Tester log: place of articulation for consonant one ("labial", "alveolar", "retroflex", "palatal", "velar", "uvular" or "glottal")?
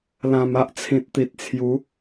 alveolar